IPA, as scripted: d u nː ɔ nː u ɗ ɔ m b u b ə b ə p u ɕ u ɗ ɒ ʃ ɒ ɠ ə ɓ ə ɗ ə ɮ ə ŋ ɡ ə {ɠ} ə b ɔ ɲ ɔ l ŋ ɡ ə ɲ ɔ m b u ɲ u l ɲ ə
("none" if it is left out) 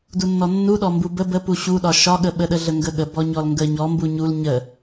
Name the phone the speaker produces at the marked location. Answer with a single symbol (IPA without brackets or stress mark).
ɠ